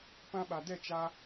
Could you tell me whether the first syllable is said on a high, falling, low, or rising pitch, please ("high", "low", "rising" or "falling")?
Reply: high